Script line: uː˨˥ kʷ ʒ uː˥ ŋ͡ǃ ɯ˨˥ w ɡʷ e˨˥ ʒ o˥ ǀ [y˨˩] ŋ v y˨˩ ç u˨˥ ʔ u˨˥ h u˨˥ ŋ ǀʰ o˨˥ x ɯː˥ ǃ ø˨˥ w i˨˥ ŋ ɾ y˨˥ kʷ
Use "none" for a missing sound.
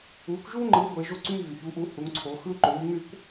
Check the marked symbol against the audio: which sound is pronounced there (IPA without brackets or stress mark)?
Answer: y˥